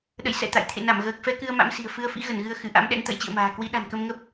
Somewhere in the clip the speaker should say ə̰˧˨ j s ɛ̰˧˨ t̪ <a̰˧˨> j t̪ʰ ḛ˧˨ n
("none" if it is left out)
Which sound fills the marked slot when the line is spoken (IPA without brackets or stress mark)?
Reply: a̰˧˨